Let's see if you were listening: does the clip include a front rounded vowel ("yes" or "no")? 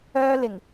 yes